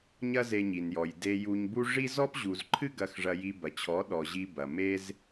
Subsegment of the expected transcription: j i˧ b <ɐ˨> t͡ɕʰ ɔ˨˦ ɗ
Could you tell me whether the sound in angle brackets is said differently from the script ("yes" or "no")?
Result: no